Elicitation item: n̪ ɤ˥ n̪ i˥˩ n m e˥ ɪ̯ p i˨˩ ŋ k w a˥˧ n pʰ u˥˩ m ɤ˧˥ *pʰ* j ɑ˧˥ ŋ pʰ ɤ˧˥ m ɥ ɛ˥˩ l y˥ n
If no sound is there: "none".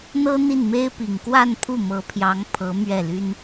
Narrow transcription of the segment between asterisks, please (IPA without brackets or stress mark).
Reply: pʰ